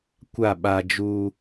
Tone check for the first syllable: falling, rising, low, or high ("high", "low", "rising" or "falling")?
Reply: falling